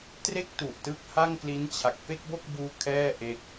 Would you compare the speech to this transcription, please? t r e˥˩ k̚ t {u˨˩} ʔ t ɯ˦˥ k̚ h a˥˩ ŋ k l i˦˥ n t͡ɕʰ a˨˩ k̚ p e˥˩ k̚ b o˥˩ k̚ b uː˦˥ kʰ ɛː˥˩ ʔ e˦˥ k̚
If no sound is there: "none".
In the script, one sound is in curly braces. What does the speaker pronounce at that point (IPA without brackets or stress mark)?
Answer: u˨˩